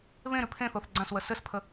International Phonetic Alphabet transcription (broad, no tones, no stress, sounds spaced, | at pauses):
β ẽ ɾ ʉ pʰ ẽ θ o θ ɡ͡ǀ ã s w ə s ɘ s pʰ ə